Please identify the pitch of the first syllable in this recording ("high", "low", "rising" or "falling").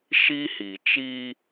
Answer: high